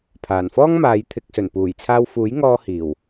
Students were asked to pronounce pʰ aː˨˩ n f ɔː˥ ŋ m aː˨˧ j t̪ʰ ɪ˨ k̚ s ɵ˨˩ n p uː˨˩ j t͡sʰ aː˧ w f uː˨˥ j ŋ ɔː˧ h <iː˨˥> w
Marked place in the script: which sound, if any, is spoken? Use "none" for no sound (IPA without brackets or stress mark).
iː˨˩